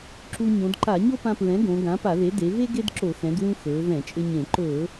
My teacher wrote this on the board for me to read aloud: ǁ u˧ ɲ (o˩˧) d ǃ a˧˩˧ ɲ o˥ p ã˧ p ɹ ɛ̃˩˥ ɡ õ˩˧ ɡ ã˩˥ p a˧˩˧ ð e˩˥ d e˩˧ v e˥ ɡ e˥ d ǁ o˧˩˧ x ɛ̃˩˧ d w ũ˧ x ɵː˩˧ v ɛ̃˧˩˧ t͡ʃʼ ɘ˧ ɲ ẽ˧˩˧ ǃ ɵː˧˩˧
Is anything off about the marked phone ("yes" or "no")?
yes